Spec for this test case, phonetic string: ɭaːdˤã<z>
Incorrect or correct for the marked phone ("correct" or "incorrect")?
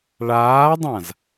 correct